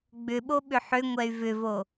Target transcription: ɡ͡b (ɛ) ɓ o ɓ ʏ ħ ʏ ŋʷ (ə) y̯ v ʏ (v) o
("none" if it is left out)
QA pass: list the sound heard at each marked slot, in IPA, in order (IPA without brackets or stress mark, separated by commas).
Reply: ʏ, ɛ, v